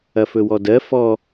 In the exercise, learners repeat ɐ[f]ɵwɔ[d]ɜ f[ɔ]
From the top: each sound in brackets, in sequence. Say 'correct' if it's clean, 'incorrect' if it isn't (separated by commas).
correct, correct, correct